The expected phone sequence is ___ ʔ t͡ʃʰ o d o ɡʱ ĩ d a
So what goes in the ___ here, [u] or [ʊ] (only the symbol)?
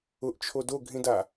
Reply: ʊ